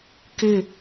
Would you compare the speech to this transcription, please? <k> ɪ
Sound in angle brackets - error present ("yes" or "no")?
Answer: no